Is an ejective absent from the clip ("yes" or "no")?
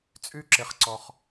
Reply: no